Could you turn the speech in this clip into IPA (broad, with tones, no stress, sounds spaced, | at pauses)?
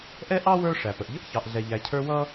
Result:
ʔ ɛ˥ ʔ ɑ˥ w ə˞˦ ʂ æ˩ p ə˩ ʔ ʎ ə˥ ʔ ç ɑ˨ ʔ ɮ ɛ˨ ʎ æ˨ cʰ ə˞˦ w ʌ˥